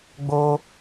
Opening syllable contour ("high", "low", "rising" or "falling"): high